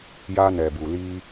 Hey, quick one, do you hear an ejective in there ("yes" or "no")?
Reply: no